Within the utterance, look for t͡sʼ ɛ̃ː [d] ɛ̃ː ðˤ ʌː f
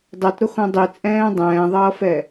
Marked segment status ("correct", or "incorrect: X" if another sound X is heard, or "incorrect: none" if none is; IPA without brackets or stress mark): incorrect: dˤ